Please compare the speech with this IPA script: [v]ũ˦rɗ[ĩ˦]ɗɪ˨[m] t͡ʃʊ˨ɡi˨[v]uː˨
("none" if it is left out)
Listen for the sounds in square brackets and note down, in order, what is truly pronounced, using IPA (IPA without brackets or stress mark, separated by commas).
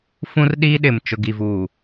f, i˦, m, v